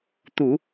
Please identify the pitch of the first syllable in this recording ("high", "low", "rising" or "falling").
low